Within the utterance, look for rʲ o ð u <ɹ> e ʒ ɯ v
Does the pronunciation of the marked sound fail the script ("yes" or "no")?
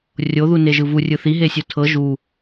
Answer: yes